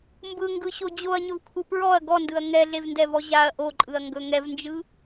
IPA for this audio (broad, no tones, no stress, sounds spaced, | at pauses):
m b ɯ ŋ ɡ ɯ ɕ o d͡ʑ o ɐ̯ ɲ ɵ v kʷʰ ɯ p ɹ ɔ ɐ̯ ɡ ɔ n d ɯ ɐ̯ ŋ ɛ ɮ e v n d ɛ v ɔ ʑ a ɐ̯ ʔ o ǃʼ ɯ ɐ̯ ŋ ɡ ɵ ŋ ɛ v n d͡ʒ ɯ